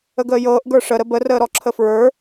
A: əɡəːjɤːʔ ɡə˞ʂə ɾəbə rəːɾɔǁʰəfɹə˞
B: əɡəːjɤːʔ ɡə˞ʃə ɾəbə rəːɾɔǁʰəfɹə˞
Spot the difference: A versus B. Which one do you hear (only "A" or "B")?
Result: A